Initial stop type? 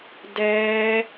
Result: plain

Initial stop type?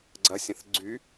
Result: click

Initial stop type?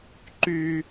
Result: click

